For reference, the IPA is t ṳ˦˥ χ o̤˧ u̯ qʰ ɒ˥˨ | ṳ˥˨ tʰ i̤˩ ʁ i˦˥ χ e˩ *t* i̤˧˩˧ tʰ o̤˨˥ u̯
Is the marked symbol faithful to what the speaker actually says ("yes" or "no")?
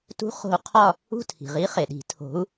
no